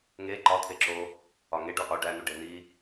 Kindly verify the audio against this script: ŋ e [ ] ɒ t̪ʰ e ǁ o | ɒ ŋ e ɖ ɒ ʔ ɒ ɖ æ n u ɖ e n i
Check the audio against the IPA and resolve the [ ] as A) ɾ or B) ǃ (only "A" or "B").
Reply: B